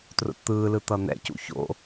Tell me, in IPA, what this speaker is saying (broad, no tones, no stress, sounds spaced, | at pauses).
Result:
t r o̰ t t̪ ɯː l ɯ t̪ ʌ n̪ ɛ̰ c ṵ ç o̰